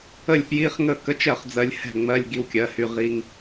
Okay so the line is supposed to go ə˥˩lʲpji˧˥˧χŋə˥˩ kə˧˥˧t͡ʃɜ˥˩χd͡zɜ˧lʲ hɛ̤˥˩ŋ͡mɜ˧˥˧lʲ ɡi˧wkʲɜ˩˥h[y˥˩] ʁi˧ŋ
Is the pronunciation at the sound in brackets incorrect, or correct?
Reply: incorrect